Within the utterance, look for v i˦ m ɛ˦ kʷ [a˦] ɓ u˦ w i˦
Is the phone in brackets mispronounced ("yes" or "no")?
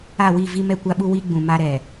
no